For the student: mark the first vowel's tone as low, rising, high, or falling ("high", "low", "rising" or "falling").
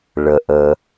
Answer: low